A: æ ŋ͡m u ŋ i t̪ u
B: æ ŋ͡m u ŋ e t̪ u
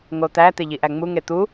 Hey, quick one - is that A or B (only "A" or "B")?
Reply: B